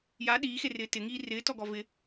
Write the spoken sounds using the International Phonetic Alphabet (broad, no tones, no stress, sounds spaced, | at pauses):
j a ɗ iː x e r ɪː t ɪ ŋ iː r ɪː t ɔ ɡ ɔ v ɪ